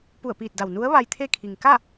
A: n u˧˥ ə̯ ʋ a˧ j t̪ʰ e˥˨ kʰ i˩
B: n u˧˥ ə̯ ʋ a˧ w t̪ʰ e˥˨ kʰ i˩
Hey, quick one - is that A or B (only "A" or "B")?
A